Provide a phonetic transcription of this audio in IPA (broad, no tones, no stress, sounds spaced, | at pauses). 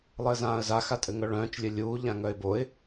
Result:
lˠ ɘː z ãː ə̯ z a x a tʼ ɘ ŋ œ ɭ œ̃ː t͡ʃ lʲ ɘ lʲ uː ʎ ã ŋ œ ɪ̯ b o ɪ̯